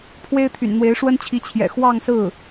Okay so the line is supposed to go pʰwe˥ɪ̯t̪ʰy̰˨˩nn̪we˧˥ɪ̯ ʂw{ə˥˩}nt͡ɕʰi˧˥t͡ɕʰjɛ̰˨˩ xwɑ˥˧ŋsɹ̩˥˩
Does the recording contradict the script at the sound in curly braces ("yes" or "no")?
yes